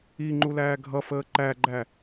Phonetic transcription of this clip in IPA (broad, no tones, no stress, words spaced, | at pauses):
iŋ͡ǃu læːɡʱʌfəː ǃæɡ͡ǃæ